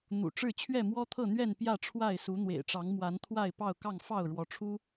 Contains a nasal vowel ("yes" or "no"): no